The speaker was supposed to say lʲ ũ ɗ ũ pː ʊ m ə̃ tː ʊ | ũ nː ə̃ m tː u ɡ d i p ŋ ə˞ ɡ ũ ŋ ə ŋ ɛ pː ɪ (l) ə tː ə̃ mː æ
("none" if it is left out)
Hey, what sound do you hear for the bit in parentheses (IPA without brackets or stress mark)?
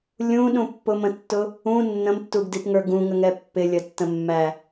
lʲ